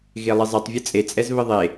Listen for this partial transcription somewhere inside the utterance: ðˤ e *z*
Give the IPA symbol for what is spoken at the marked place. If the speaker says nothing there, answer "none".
none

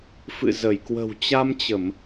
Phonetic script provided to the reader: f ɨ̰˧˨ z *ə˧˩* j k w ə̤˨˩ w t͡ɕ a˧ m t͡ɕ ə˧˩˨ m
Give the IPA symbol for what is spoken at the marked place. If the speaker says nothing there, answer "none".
ə˧˩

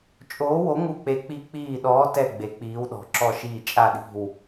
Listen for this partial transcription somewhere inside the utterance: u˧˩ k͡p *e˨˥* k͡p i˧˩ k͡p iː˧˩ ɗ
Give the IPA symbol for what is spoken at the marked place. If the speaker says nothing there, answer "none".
e˨˥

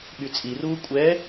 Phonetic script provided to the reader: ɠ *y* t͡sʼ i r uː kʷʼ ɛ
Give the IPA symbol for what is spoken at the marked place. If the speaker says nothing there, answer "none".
y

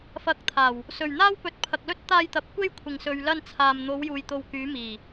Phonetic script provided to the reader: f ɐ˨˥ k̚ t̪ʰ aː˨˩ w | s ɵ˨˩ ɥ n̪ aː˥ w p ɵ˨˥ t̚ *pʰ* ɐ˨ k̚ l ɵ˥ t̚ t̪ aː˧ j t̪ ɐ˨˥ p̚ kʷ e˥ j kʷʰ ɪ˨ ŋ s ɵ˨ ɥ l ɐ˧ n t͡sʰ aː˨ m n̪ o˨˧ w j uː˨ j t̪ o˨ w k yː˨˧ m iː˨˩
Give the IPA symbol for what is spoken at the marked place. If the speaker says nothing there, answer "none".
pʰ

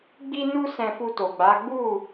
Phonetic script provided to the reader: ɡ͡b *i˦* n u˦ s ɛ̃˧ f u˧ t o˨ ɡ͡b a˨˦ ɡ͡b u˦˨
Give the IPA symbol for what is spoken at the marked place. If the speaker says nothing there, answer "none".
i˦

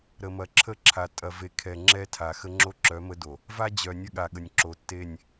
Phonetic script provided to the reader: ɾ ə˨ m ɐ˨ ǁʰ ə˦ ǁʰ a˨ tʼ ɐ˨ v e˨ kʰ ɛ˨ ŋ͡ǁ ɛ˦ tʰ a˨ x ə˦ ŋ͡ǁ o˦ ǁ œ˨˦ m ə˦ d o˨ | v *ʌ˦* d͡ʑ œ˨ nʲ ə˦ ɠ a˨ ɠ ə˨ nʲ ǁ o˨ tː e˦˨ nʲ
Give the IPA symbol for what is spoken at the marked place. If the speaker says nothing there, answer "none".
a˦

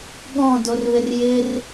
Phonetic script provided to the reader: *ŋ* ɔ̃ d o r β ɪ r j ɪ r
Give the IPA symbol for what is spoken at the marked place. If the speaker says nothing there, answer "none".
ɠ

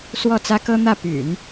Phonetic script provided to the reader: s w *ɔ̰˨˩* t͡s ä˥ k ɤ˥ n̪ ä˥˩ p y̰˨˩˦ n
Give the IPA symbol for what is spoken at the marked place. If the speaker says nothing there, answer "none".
ɔ˥˩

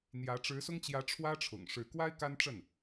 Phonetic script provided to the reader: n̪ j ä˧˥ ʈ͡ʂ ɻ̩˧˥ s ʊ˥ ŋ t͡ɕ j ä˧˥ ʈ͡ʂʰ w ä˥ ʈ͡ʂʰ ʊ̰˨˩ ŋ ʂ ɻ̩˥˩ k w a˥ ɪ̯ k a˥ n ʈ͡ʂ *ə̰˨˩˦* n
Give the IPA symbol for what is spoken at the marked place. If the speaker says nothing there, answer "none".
ə˥˩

